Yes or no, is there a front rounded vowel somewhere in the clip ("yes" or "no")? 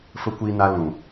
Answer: no